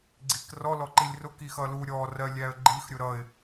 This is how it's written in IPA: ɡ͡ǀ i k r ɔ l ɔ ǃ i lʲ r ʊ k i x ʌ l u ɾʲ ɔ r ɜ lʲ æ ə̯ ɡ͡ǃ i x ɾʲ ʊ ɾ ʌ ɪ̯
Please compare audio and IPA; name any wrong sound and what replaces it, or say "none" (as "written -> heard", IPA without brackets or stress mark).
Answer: none